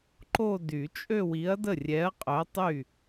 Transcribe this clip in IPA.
ǃ o˥˧ d y˨˩˦ t͡ʃʼ ø˥˧ w i˨˥ ɐ̯ d ə˥˩ rʲ ɛ˨˥ ɐ̯ qʼ œ˨˥ tˤ y˥˩

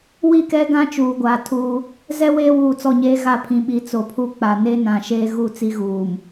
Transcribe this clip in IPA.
w i˦˨ k ɛ˦ ɡ ã˦ t͡ʃ uː˨ ɡʷ aː˨ tʰ uː˦ | z ɛ˦ w eː˦ w uː˨ t͡s ɔ˦˨ ɲ eː˦ ɣ a˦˨ pʰ ĩ˨ ɓ i˨˦ t͡s o˨ pʰ u˦ k͡p a˨ n e˦ n ã˨ ʃ eː˦ ɣ u˦˨ t͡s i˦ ɣ uː˨ m

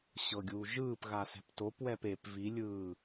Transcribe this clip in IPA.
ɕ ɤ ɡʲ uː ʒ ɯː p ɣ a s ɛ̤ p t o p w ɛ p e p v i lʲ ɯː

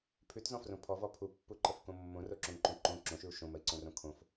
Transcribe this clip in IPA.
pʰ ʉ t z ɔ̃ f r õ pʰ ɔ v ɔ pʰ u pː u ǃ ə f k õ mː õ r o ǁ õ ŋ ǃ õ ǃ õ ǁ õ ʃ ʉ u̯ ʃ õ m ə i̯ ǀ õ r õ kʰ õ f

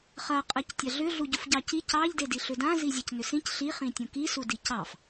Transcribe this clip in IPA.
χ ɐ qʼ ɐ c tʲ ɐ ɮ ʏ ɮ u ɟ u f ɟ ɑ c i c ɑ ʎ d e d i ɬ ʏ d ã z i zʲ a c n ʏ s ĩ c ɬ i χ ĩ tʲ ũ k i s u d i c ɑ f

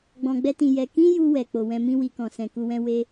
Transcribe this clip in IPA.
ɡ͡b ɔ̃˧ ɡ͡b ɛ˦ t ĩ˧ j ɛ˧ k ĩ˦ j u˧ w ɛ˨ k͡p o˨ w ɛ̃˨˦ m ĩ˦ w i˧ k ɔ̃˨ s ɛ̃˨ k u˧ w ɛ̃˧ w e˦

